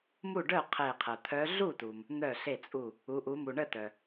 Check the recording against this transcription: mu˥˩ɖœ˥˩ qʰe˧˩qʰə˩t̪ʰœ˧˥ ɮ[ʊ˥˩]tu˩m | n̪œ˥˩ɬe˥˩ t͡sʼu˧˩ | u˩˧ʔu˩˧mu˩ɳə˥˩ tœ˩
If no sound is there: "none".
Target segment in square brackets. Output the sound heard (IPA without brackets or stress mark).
u˥˩